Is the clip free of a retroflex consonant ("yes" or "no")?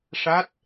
no